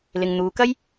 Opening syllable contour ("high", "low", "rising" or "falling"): low